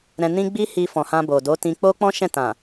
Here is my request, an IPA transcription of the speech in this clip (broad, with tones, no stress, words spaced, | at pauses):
ɾɛ̃˧nĩ˦ ɡ͡bi˦hi˧fɔ̃˨ hã˧bo˨do˨˦tĩ˧ k͡po˦k͡pɔ̃˦ʃɛ̃˦˨tã˨